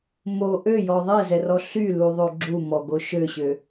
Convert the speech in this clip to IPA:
m o ʔ ø j ɔ ðˤ ɛ z ɛ r ɔ ɬ y l u ðˤ o ɡ͡ǁ u m ɔ ɡ o ʃ ø ɕ ø

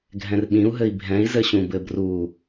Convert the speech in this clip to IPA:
ɡʱ ɛ̃ r ɓ ĩ u̯ ɦ ɘ i̯ bʱ ɛ̃ i̯ z ɘ ɕ ũ b ɘ b r u

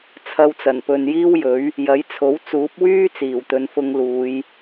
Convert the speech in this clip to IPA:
t͡sʰ ɐ˧ w t͡s ɐ˨˩ n p ɵ˨ n j iː˥ w j ɵ˨˥ ɥ | j ɐ˨˥ j t͡sʰ o˨˥ w t͡s uː˨˥ p̚ w yː˥ t͡s iː˨˩ w t̪ ɵ˨˧ n f ʊ˧ ŋ l uː˨˧ j

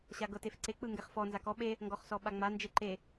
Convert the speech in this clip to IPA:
ɕ a ɡ ɤ t e f ǀ e k͡p ɯ ŋ ɡ ɛ χ f ɔ n z a k ɔ ɓ e | ŋ ɡ ɔ χ s ɔ ɓ a ŋ͡m a n d͡ʒ e ǃ e

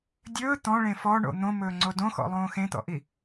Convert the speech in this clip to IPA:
dʲ ɵː t̪ ɔ̃ ɭ ẽ f ɔ ɳ o̰ n̪ õ m ɵː ŋ͡ǀ o d õ x ɔ̰ lˠ õː x ẽ t̪ ɔ̰ ʔ i

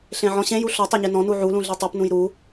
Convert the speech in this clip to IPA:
ɬ ẽ ʕ ɔ̃ ɕ ẽ j u ɬ ɔ tˤ e ɲ e n ɔ̃ n u ʕ u l ũ ɮ e tˤ u p n ũ j ɾ u

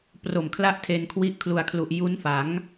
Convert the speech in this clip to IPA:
p r o˨˩ m kʰ l a˥˩ ʔ tʰ e˧ n kʰ w i˦˥ ʔ kʰ l u˨˩ a̯ kʰ l u˨˩ ʔ j u˦˥ n f a˩˦ ŋ

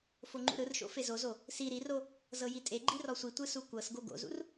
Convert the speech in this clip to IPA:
f o ŋ͡ǃ ṵ ɾ ɯ r ʃ o̰ f e z o z o | s i ɾ i r o | z ɤ j i tʼ e ɡ͡ǃ i r ɔ sʷ i tʷ ɯ s u kʷ ɤ s ɡ o ɡ o̰ z ṵ r

